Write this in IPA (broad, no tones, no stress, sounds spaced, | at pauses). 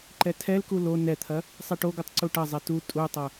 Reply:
ǃ ɛ tʰ ɛ l k u l o n ɛ t̪ʰ ɐ | sˤ ɛ ʈ o ɡ u tˤ ǀ u ʈ ɐ zˤ ɛ t u tʼ u tˤ ɐ